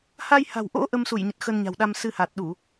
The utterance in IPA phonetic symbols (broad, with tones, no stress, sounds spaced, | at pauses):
h a˧ j h a̤˨˩ w ʔ o̰˧˥ ʔ ə˧ m s u˧˩ j ɲ ə˨˩ t̚ x ə˧ n ɲ a̤˨˩ w ɗ a˧ m s ɨ˧ h a˨˩ t̚ ɗ u˧˩˨